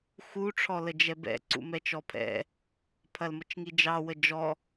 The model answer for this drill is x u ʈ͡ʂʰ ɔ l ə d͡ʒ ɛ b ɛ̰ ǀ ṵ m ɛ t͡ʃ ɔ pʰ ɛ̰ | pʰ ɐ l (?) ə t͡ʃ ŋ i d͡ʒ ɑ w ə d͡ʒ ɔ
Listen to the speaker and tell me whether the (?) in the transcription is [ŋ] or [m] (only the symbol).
m